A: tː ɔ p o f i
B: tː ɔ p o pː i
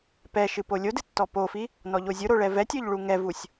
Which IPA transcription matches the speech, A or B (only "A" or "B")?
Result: A